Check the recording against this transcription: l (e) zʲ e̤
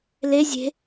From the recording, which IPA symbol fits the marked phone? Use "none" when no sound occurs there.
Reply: e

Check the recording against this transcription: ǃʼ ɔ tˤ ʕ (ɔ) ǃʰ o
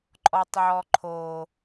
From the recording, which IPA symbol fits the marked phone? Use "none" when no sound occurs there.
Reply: ɔ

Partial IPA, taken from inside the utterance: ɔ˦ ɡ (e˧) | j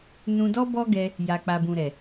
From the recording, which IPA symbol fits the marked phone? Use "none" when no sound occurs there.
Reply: ɛ˧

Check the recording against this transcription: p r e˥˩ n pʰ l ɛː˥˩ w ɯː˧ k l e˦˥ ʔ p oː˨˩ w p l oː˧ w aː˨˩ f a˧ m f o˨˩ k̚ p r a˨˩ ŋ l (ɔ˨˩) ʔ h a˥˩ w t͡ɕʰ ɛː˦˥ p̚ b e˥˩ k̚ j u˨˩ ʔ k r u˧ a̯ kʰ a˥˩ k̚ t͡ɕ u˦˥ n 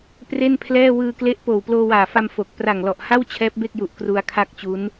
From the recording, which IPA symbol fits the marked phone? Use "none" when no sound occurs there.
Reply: ɔ˨˩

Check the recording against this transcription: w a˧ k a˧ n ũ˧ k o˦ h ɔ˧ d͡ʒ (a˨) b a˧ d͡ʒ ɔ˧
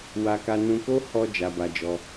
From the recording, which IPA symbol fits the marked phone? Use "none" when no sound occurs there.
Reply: a˧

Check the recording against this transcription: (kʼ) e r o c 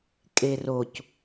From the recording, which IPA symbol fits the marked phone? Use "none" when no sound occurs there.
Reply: kʼ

